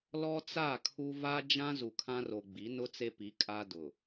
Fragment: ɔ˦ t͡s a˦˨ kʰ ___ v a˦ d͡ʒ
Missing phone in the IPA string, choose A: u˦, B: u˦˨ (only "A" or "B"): A